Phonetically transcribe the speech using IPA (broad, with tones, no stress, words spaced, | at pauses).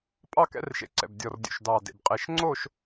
pʼɑ˥˧kɛ̰˧˥rʃḛ˧˩ǀɛ̰˧˩b dʲɔ˧˩rdʲṵ˧˩ʃ dɑ˧˩dḛ˧˩b qʼe˧˩ʃŋ͡ǀo˥˧ʃ